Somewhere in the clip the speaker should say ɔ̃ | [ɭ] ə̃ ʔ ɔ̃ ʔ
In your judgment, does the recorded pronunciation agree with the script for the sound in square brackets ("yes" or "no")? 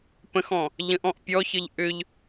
no